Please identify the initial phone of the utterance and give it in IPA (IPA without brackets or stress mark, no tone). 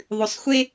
ðˤ